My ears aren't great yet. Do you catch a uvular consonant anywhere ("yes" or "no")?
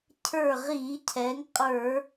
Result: yes